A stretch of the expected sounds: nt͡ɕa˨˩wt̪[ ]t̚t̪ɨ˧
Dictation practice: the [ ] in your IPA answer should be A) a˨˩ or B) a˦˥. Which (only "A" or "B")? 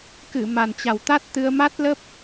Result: B